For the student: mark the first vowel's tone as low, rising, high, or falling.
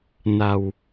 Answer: low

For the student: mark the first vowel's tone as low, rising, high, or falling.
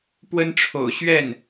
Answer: high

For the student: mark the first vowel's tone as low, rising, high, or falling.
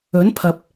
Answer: rising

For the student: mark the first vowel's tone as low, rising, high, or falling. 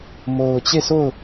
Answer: low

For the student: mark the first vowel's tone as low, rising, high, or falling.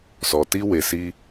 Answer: low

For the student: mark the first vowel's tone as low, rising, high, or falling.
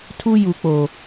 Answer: high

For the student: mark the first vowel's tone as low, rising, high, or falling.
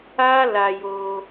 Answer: high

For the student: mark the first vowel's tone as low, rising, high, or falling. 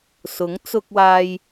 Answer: rising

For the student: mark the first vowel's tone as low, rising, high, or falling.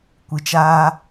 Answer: low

